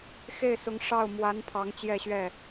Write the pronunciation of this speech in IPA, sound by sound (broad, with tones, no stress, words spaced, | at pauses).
xe˥˩ɪ̯sʊ˧˥ŋ ʂɑ˥˩ʊ̯ mwa˧˥n pʰɑ˧˥ŋ t͡ɕjɛ˥˧ɕɥɛ˥˩